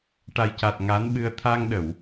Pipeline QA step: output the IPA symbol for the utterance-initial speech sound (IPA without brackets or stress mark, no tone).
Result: ʈ